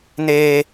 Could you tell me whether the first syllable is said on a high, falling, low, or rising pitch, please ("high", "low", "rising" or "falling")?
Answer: high